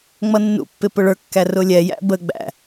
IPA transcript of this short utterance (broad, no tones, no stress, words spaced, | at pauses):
ŋ͡mʌnːṵpːɪ pʊɭə˞kːæ rʊlʲɛjæ̰ bə ɡ͡bæ̰